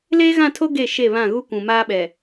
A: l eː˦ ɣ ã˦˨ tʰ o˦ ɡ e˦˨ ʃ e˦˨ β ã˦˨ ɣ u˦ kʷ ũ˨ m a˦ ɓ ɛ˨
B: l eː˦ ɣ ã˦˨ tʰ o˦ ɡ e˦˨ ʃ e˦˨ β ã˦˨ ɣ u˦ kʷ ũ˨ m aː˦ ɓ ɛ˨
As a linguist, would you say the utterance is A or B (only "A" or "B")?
B